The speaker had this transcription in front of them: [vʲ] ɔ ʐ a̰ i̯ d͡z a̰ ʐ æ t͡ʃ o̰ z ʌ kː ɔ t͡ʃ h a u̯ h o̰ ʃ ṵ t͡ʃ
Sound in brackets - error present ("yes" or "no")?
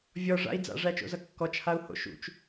no